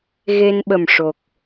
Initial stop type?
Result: implosive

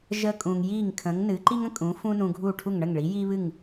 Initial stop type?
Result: ejective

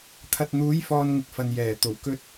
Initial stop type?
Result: aspirated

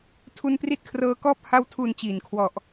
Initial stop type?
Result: aspirated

